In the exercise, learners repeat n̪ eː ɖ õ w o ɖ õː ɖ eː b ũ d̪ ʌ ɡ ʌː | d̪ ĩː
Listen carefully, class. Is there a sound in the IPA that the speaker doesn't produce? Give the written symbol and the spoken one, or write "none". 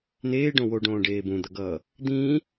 none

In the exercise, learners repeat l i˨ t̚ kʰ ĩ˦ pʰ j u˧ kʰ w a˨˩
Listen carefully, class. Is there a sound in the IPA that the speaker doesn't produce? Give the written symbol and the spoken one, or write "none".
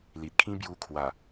pʰ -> b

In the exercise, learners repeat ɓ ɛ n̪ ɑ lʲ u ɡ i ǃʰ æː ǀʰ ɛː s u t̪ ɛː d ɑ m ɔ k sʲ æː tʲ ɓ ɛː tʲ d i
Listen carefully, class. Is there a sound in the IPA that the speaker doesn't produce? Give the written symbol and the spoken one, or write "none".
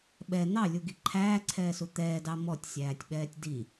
k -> tʲ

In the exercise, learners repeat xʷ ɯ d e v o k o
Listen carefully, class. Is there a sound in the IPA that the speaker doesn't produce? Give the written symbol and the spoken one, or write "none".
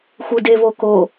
none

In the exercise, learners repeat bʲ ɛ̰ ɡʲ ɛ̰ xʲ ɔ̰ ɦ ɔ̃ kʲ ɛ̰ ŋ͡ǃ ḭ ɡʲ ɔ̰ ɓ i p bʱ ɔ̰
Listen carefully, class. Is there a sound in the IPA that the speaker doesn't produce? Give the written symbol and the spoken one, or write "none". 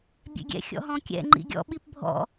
none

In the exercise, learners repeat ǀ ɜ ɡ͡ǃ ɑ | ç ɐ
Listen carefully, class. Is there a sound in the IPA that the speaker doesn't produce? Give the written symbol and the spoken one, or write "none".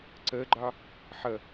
ç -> ħ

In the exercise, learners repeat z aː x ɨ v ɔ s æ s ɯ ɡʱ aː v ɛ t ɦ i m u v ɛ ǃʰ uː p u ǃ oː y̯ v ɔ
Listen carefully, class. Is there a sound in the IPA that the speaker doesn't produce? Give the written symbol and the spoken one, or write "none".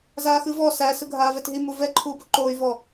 none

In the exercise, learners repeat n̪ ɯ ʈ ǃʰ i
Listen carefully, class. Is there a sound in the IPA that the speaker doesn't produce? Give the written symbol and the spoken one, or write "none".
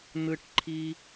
none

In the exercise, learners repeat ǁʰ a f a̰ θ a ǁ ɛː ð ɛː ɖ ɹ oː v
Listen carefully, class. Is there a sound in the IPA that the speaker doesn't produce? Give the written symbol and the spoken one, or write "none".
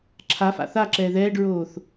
v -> θ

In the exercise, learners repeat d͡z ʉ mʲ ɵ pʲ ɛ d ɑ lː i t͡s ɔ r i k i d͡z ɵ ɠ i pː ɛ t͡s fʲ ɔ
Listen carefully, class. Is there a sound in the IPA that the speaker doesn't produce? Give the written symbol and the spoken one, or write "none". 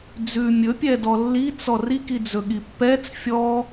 ɑ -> ɔ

